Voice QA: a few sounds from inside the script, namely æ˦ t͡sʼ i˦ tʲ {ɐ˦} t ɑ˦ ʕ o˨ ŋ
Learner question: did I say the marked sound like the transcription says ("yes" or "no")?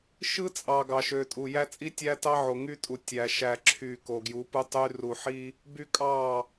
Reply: no